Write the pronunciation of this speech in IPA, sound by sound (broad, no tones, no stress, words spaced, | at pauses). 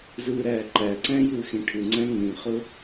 zɯːɾæːǃæǀæ̃ jɯːxĩʈʰɯŋ͡ǀæ̃ ŋĩχʊ